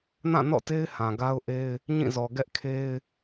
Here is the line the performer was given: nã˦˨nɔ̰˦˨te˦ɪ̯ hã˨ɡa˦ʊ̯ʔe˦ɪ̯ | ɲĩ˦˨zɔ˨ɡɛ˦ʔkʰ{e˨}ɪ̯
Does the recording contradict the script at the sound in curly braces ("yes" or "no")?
yes